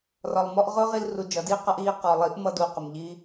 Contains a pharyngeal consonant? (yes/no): no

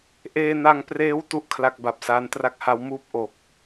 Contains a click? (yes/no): no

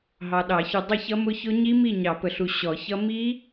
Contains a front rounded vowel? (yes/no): no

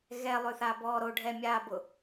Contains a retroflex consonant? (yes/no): yes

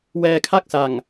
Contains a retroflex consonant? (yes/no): no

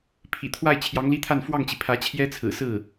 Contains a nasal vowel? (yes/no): no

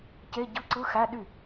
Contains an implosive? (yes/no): yes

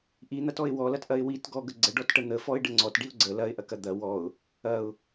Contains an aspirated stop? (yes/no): no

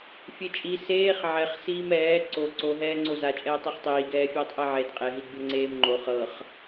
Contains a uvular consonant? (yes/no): yes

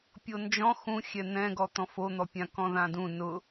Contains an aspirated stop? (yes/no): no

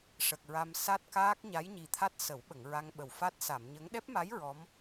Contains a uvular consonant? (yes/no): no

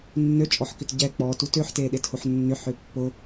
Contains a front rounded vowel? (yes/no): yes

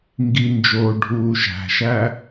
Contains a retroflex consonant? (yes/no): yes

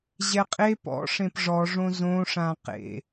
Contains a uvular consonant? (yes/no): yes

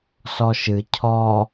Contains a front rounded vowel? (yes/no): no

